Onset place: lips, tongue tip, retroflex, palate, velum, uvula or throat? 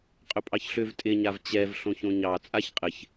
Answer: uvula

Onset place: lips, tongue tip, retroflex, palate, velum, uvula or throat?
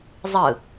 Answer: tongue tip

